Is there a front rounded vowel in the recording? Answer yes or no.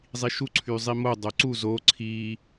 yes